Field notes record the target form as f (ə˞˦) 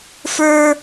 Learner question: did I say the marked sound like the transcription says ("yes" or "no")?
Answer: yes